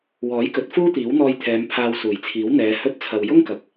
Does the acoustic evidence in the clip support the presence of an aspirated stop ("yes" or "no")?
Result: yes